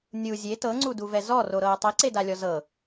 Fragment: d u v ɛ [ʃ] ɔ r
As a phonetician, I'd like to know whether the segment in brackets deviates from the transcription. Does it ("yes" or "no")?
yes